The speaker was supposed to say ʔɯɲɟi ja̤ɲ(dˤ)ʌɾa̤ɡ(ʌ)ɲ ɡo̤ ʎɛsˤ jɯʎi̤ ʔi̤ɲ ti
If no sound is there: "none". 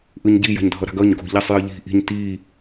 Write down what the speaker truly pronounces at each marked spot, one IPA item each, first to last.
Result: dʱ, ʌ

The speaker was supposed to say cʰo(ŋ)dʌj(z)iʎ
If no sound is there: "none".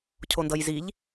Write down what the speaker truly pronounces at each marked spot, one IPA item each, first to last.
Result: n, z

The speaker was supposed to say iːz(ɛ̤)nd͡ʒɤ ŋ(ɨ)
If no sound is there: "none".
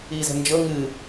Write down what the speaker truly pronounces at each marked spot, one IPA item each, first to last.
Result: ɛ̤, ɨ

